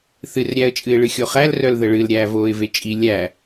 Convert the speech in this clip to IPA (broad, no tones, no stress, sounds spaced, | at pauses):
θ ɨ r ɾʲ æ ə̯ t͡ʃʼ ɨ ɪ̯ ɭ ɨ xʲ o χ æ l r œ l ð ə ɭ ɨ l ɾʲ æː v oː ɪ̯ v e t͡ʃʼ i lʲ æ